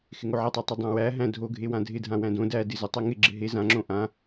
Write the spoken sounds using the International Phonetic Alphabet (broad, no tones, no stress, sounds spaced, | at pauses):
x ɪ ŋ o ʕ ɪ tˤ a tˤ ɪ dˤ æ̃ w æ ɦ æ̃ dʱ o ɡʱ e w ã dʱ ɪ dʱ ã w æ̃ d õ d æ d ɪ z ɪ tˤ e ŋ ɪ ɡ͡ǁ ɪ ɦ e z ã ŋ͡ǁ õ ʔ ã